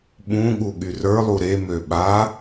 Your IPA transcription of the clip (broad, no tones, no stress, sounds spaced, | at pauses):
ɓ ũ ɠ u ɠ y r ə˞ lˠ u ɾ e m ø ɓ a